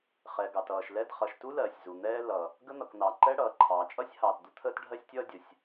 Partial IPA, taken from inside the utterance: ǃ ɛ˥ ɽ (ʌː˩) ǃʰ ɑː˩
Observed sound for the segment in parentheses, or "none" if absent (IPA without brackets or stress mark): ʌː˩